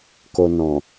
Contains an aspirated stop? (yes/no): no